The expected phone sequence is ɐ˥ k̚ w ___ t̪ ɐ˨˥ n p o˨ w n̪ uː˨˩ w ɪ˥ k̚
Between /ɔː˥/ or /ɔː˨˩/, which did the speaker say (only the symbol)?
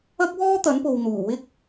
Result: ɔː˥